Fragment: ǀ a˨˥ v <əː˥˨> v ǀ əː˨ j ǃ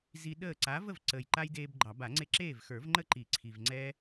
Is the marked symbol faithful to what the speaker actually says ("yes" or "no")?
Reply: no